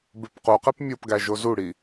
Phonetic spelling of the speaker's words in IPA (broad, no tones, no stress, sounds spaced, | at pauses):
b e p q u q e p mʲ o p ɡ æ ʒ o z u ɽ i